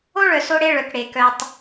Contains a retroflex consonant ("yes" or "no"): yes